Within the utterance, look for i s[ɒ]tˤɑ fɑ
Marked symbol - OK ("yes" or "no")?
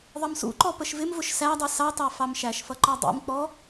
no